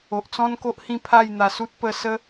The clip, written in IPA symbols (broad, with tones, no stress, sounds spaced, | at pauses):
o˨ ʔ t͡s ɔ̃˦ n k o˦ ʔ h ĩ˥˧ pʰ a˥˧ j n̪ a˧ s u˦ t̚ p ə˥˧ s ə˦